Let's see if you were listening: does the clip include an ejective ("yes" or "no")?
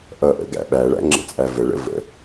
yes